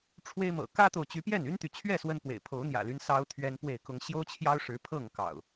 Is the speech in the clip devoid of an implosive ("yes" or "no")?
yes